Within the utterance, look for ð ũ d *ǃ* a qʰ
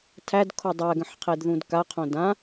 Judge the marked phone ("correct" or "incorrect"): incorrect